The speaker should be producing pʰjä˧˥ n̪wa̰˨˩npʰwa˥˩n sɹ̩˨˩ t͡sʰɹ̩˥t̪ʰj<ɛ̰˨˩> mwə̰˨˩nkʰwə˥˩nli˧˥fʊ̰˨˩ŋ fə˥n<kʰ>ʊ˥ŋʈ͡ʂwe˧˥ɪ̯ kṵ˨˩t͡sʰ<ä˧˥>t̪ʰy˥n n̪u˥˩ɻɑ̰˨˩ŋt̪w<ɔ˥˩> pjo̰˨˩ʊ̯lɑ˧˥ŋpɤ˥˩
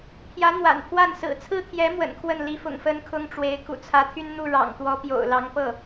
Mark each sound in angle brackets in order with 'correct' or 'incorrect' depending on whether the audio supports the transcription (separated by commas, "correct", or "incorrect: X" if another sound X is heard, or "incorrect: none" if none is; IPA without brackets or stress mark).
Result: incorrect: ɛ˧˥, correct, correct, incorrect: ɔ˧˥